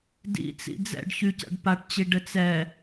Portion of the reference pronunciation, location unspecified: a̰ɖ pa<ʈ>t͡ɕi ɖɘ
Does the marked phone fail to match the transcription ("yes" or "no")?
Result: no